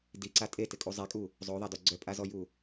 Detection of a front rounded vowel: present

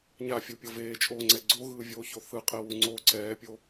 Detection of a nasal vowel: absent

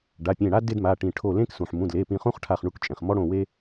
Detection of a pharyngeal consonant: present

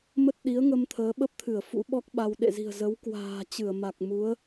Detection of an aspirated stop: present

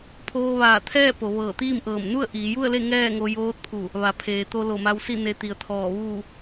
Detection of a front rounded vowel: absent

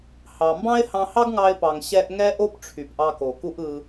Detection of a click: absent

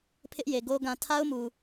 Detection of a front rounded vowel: absent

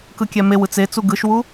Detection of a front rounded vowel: absent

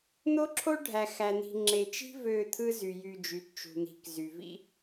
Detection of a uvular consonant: absent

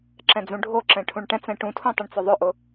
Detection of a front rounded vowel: present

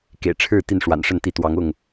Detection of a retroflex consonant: present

